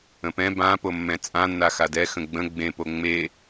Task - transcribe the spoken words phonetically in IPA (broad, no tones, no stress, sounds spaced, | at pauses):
ə̃ p ɛ̃ b ã p o mː ɛ̃ t͡sʼ ã nː a x a d ɛ x ə̃ ɡ͡b ə̃ ɡ͡b ẽ p o ŋ͡m e